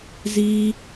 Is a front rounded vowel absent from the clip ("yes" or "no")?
yes